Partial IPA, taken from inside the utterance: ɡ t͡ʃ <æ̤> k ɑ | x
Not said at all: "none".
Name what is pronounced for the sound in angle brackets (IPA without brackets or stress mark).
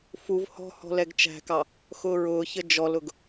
æ̤